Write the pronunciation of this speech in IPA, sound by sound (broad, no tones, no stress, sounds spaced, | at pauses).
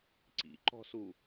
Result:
ǀ ḭ ǃ ɔ̤ s u